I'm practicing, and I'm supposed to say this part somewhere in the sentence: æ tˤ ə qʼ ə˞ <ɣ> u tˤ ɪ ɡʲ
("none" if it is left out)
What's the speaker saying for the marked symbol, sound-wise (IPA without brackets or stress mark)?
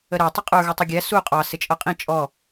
ɣ